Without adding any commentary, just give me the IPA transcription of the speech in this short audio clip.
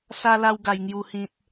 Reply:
s a˧ l a˧ w ɡ a˨˩ j ŋ j u˨˩ h ĩ˨ t̚

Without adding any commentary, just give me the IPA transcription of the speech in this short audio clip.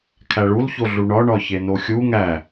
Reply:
kʰ æ ɭ u l ç o ɮ u ɳ ɒ ɳ ɒ ç e n o xʲ u ŋ æ

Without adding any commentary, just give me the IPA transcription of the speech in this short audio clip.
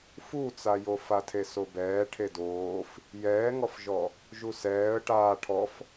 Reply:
f u t͡s a j o f a tʰ e s o b ɛː ʈʰ e d oː f | j ɛː ŋ ɔ f ʒ ɔ | ʒ u s ɛː ə̯ ʈ aː ʈʰ ɔ f

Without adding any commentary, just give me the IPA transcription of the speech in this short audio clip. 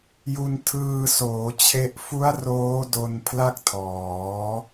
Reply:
j u˧ n tʰ ɯː˧ s oː˩˦ t͡ɕʰ e˦˥ ʔ f u˦˥ a̯ r oː˦˥ d o˧ n pʰ l a˥˩ k̚ tʰ ɔː˩˦

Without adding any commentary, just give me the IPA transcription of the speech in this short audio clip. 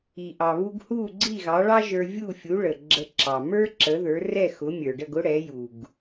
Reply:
i˩ ʔ ɑ˩ β u˧ ɡ h u˥˩ ɡ͡ǀ i˥˩ ɣ ɑ˩˥ ɭ ɑ˥ ʒ ə˞˧ vʲ u˥˩ fʲ u˩˥ ɭ ə˩ ɡ͡ǁ ə˧ ǁ ɑ˩ m ə˞˥ ǁ ə˩˥ ð ə˞˩˥ r ɛ˥˩ x ʊ˩˥ mʲ ə˞˩ ɖ ə˥˩ ɡ ʊ˥ ɽ ɛ˩˥ j u˩ ɡ

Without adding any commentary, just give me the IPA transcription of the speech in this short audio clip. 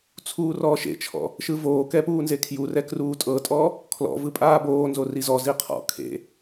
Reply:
t͡sʰ uː r ɔː ʃ ḛ t͡ʃʰ ɔ̰ | ʃ ɯ v oː k ɛ p uː n z e kʰ j u r ɛ k r uː tʼ ɤ tʼ ɔ | kʰ l ɔ̰ v ɯ pʼ aː b oː n z o r i z ɔ z i qʰ ɔ̰ kʰ ḛ

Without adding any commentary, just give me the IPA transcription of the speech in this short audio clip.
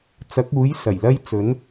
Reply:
t͡s ɐ˨˥ k̚ uː˨˥ j s ɐ˨˩ j l ɐ˥ j t͡s ɵ˨˥ n

